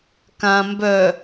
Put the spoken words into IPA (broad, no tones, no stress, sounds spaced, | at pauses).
k ã m b œ